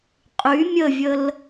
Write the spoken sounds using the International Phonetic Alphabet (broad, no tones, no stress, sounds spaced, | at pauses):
qʼ y mʲ ə vʲ ə l